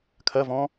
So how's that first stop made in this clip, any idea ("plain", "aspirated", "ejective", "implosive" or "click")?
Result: aspirated